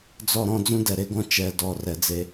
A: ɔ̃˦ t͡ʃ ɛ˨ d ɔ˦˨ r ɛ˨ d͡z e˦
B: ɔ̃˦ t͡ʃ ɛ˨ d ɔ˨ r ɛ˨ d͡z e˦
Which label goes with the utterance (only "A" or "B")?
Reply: B